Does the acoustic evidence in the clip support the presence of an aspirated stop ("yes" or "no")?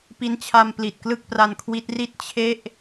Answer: yes